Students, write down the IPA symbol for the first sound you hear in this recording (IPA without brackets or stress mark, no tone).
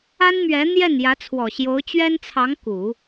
a